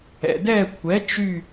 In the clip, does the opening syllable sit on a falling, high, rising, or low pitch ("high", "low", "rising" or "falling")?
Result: low